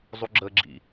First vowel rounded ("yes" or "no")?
yes